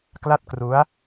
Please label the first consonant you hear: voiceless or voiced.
voiceless